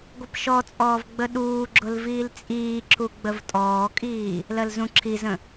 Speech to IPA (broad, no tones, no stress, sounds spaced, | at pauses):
ɡʷ ə p ʃ ɔ t͡sʼ ɔː v ɡ͡b ə ɗ uː ɡ͡ǁ ʊ l v iː l t͡sʼ iː ǁ u ɡ͡b ə v tʼ ɔː kʼ iː | l ɜ l z ũ ǁʰ i z ə̃